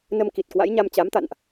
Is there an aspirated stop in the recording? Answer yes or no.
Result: no